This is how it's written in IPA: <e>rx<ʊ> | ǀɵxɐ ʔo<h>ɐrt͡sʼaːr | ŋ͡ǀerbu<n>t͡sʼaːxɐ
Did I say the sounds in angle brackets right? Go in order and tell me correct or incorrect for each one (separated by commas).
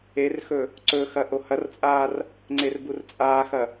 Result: correct, incorrect, correct, incorrect